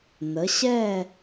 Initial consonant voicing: voiced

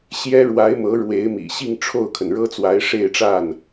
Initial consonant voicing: voiceless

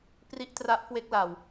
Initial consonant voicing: voiceless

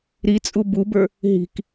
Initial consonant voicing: voiced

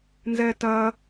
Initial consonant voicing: voiced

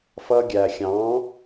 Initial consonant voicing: voiceless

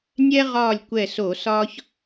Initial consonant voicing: voiced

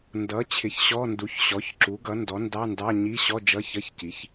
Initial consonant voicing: voiced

